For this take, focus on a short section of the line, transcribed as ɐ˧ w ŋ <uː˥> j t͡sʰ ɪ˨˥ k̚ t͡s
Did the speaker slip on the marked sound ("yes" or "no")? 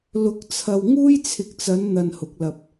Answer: no